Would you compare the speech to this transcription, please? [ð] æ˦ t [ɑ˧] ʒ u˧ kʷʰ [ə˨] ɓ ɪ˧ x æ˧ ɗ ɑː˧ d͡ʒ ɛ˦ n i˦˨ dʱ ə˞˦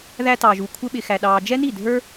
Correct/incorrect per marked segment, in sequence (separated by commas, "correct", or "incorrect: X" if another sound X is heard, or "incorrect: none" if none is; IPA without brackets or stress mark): correct, correct, incorrect: ə˦